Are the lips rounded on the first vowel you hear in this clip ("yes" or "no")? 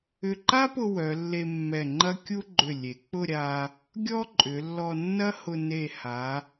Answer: yes